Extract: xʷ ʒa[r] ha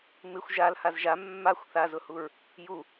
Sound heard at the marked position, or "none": l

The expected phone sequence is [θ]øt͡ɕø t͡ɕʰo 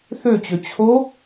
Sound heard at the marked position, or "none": θ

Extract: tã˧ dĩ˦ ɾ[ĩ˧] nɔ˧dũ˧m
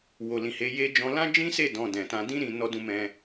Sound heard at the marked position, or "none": ĩ˧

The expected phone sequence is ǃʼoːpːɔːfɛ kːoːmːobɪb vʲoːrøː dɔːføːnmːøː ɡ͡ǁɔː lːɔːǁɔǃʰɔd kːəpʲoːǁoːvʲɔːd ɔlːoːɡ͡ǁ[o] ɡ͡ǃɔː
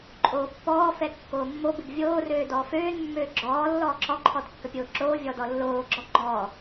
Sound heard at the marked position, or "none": ɔ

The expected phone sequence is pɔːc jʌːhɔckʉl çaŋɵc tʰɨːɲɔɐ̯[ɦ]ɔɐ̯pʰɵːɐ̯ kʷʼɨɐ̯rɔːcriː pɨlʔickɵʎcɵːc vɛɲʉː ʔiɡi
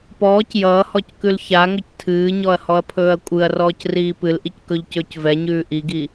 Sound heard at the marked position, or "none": h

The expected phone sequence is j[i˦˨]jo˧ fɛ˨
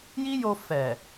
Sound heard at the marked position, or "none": i˦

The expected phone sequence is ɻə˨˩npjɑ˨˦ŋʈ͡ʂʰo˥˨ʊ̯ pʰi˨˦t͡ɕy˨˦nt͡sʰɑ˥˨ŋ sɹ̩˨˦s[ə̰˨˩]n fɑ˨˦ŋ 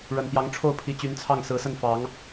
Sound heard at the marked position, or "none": ə˥˨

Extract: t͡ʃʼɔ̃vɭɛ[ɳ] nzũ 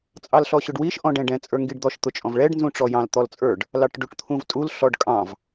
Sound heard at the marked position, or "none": ɖ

